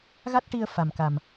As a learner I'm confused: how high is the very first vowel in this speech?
low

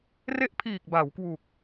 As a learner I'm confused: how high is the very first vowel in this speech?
mid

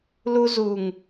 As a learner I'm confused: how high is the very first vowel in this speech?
high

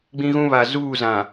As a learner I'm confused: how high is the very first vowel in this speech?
high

